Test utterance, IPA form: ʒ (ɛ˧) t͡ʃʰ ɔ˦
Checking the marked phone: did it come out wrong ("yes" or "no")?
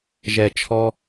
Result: no